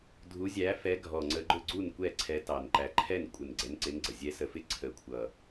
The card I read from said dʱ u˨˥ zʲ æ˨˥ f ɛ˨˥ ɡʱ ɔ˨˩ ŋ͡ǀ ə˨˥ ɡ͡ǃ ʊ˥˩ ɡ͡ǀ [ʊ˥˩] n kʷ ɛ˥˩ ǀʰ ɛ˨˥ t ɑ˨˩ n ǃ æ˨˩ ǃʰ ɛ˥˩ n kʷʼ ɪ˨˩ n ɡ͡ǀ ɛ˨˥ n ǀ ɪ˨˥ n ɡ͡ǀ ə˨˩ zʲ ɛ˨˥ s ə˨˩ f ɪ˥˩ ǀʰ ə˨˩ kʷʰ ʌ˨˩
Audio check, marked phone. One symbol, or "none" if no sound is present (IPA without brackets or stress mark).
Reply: u˥˩